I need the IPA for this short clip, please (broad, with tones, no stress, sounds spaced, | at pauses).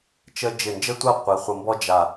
t͡ʃ ə˧ d͡ʒ ɪ˧˩ n d͡ʒ ə˥ tʷ ɐ˥˧ qʷ i˩˧ χʷ ə˧ m b ɔ˥ d͡ʒ a˧˩